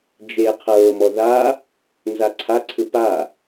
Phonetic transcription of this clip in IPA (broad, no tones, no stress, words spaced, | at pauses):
d͡ʒe qʰɤːmɔ ða | nzaǀʰaǀʰɯ pa